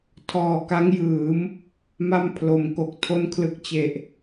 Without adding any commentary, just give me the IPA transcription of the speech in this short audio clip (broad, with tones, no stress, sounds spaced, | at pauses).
tʰ ɔː˨˩ k a˦˥ ŋ j ɯː˩˦ m | m a˥˩ m pʰ l o˩˦ m k o˨˩ k̚ tʰ o˦˥ n kʰ l ɯ˨˩ k̚ t͡ɕ e˨˩ ʔ